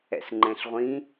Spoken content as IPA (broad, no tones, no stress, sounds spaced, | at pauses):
ɛ̰ s ŋ͡ǃ ɛ̃ ɬ ʁʷ ĩ